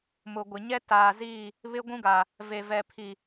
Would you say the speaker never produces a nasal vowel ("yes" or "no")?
no